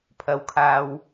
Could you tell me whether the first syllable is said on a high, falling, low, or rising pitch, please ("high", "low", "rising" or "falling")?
high